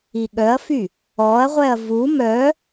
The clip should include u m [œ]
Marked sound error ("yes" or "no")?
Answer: no